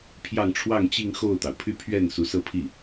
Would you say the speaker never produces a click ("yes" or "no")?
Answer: yes